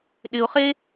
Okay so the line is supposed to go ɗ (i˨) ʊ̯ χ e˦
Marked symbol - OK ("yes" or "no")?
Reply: no